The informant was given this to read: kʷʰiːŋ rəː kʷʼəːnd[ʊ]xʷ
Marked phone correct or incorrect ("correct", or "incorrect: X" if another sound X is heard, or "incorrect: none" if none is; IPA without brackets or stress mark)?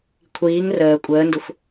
correct